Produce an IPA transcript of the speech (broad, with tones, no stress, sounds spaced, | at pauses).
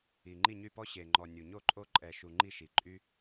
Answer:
i˨˩ ŋ͡ǃ i˥˩ ɲ y˥˩ p ɔ˦ ɕ e˨˩ ŋ͡ǃ ɔ˨˩ nʲ u˨˩ ɲ o˥˩ ǃʼ o˦ ǃʼ ɛ˨˩ ʃ u˨˩ ŋ͡ǃ i˥˩ ʃ i˨˩ ǃʼ y˦